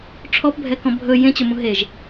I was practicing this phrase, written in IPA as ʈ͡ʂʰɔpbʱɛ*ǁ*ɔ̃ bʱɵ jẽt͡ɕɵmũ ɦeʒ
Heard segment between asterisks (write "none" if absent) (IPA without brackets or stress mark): k